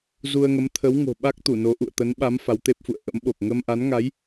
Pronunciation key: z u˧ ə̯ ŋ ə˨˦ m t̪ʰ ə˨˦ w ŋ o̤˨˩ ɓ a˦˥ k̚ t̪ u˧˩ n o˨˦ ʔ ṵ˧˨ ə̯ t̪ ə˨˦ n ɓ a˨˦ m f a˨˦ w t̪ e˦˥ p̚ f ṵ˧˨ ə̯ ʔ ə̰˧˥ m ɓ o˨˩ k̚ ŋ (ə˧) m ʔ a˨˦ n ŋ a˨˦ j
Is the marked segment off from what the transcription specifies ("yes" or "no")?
no